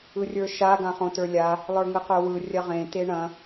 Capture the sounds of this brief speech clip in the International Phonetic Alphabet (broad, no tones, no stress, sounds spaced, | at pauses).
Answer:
ɯ rʲ ə˞ ʃ a ɡ ã χ õ t ə˞ lʲ a | lˠ ə˞ ŋ ɯ q ə˞ w ɯ rʲ ɐ ʁ ẽ t e ɳ ɐ̃